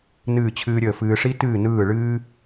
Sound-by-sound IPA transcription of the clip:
n ɨː˦˨ t͡ɕʰ ɨː˦ ɾʲ əː˦˨ f ɨː˦ ʂ i˦ t ɨː˦˨ n ɯː˦˨ ɭ ɨː˦

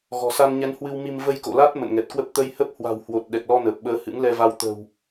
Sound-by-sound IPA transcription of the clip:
ɣ ɔ̤˨˩ s a˧ n ɲ ɛ˨˦ n h w ɨ˧ w m i˧ m v ə˧ j k o̰˧˨ l a˦˥ t̚ m ə̰˧˨ n ŋ ɛ˨˩ t̚ k w ə˦˥ p̚ t̪ ə˧ j h ə˦˥ p̚ h w a̤˨˩ w h w o˨˩ t̚ ɗ ɛ˨˩ k̚ l ɔ˧ n əː˨˩ p̚ ɓ əː˨˦ h ɨ̰˧˥ ŋ l ɛ˧ v a˧ w t̪ ə̤˨˩ w

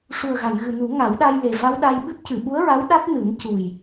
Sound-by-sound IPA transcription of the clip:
ʂ u˨˩ ə̯ ɣ a˨˩˨ n ɣ ɨ˨˩ n u˨˩˦ ŋ a˨˩˦ w ɗ a˧ j l e˨˩ v a˧ w ɗ a˧ j ɓ ɨ˦˥ p̚ c ɨ˨˩˨ ɓ u˧˥ ə̯ ɹ a˧˥ w ɗ a˦˥ t̚ n ɨ˨˩˦ n c u˨˩ j

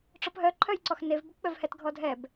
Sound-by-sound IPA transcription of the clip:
ʈ͡ʂ ɔ p ɦ œ ǃʰ œ j ǀ ɔ x n e v b ʊ p ɓ œ v h ɛ t ɡʱ ɔ dʱ ɛ b

